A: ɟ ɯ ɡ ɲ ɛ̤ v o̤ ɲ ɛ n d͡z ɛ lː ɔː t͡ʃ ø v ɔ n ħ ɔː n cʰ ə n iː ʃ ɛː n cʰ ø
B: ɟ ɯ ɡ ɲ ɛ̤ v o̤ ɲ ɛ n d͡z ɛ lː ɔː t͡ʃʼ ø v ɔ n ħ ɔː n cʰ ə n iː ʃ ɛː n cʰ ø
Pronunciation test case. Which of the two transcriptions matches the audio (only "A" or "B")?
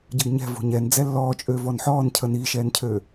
B